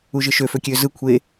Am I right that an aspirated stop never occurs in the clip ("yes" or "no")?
no